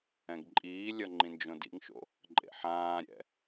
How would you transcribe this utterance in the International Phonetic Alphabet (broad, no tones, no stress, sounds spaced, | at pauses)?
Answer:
ɛ̃ ɡ ǃʼ iː lʲ ʌ ŋ͡ǃ ĩ n d͡ʒ õ d ḭ ŋ ʃ o̰ | ǃʼ ḛ ħ ãː ɾʲ ɛ̰